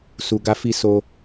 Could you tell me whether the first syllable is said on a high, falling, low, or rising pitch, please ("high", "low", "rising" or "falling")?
low